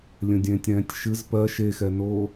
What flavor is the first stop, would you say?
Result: plain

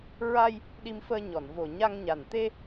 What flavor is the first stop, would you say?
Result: implosive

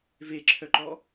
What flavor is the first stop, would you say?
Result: click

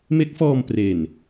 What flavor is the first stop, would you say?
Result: plain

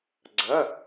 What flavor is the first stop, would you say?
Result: click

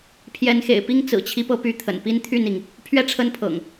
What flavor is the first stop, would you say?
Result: aspirated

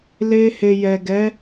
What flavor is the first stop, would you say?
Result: plain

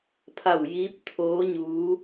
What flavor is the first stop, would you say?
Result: aspirated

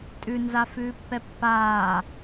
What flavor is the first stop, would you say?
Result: ejective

